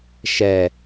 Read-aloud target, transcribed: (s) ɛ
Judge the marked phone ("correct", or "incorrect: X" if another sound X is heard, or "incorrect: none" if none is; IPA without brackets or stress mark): incorrect: ʃ